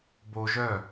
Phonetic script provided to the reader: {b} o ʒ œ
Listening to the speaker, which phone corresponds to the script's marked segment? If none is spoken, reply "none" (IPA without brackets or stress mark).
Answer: b